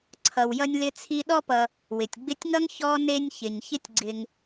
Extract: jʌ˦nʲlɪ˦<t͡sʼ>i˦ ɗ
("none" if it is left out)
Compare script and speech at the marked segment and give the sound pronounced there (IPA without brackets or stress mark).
t͡sʰ